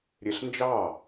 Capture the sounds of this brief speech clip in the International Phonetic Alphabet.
ɾʲ e ɬ n d͡ʒ ɑ

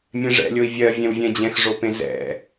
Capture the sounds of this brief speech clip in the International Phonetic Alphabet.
mʲ ẽ ʐ ɛ̰ lʲ o i̯ vʲ ɜ vʲ ɛ̃ w vʲ ɛ̃ d͡ʑ ɛ̃ x ʐ o p ẽ z ɛ̰

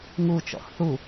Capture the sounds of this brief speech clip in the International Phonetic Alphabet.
ŋ u t͡ʃ ɔ̰ x θ u

